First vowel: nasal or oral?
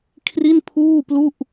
oral